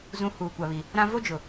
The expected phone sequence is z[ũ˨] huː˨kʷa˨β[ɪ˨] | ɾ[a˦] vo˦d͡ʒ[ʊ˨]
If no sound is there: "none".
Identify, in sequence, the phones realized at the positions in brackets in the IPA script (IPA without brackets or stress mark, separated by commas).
ũ˨, i˨, ã˦, ʊ˨